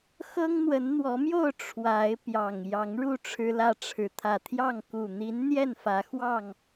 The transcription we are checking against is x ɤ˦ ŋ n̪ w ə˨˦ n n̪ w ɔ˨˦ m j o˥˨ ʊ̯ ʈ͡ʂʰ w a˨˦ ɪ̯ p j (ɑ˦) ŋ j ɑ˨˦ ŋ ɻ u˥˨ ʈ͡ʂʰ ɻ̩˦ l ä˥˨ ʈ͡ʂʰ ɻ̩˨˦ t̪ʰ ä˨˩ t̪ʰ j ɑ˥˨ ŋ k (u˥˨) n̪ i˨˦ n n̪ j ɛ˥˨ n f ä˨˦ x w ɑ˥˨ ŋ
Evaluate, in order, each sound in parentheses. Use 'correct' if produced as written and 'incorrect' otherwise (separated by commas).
incorrect, incorrect